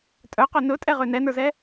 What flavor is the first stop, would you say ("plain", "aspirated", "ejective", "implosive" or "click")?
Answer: ejective